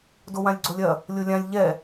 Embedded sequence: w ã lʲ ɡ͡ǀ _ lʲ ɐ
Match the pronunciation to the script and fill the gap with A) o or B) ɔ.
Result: A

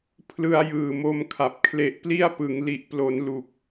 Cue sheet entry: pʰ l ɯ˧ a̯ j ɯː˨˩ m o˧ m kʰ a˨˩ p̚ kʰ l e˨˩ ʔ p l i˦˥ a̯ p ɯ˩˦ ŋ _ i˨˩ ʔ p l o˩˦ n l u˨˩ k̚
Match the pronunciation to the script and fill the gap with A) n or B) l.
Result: B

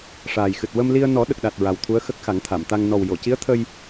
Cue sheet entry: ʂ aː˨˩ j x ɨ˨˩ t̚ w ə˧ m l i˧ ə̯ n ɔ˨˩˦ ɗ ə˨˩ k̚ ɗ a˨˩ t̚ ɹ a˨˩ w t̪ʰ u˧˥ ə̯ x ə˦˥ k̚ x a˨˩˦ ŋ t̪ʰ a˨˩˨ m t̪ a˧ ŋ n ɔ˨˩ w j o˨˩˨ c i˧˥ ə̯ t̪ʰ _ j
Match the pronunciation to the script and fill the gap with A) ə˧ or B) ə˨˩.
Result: A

